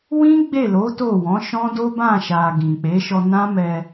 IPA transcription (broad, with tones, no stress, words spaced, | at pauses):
wĩ˦ ɡ͡be˦˨lo˨˦ to˦˨wɔ̃˨˦ʃɔ̃˦ do˦bã˦˨ʃa˨ ɡĩ˨k͡pe˨˦ʃɔ˧ nã˦mɛ˧